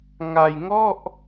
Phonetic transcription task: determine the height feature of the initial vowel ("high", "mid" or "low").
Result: low